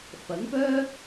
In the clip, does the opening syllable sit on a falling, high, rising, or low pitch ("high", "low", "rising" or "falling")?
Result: rising